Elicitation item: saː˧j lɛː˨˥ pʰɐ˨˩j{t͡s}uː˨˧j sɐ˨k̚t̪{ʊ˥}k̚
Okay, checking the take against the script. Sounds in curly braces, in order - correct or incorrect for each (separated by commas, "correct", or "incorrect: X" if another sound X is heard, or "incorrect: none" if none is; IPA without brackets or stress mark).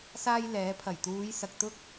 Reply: incorrect: t̪, correct